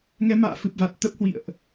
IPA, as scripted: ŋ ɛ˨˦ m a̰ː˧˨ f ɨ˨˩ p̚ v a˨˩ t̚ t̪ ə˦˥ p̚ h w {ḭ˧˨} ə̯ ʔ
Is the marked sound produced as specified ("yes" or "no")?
yes